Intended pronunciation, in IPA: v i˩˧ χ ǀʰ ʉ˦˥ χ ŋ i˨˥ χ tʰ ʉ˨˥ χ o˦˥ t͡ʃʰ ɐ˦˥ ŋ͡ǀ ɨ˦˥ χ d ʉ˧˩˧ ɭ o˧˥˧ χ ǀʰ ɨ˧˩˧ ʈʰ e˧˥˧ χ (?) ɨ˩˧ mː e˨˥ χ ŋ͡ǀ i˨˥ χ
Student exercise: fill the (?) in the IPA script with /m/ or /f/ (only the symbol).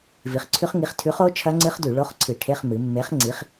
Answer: m